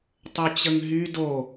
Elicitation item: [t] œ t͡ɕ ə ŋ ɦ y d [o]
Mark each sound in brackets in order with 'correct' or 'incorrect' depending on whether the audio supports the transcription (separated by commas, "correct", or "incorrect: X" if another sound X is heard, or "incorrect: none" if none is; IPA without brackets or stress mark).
incorrect: tˤ, correct